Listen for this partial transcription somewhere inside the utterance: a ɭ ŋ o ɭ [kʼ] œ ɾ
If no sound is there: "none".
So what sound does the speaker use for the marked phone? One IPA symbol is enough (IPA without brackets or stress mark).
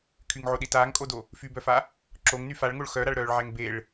x